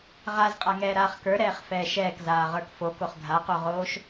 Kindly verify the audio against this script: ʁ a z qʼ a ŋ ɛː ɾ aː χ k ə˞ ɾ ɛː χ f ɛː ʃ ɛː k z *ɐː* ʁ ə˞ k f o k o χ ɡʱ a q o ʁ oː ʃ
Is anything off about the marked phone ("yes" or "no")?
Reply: yes